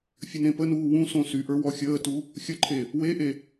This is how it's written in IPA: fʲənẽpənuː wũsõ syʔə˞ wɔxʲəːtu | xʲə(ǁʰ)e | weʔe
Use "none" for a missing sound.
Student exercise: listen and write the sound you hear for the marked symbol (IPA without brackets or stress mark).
ǃʰ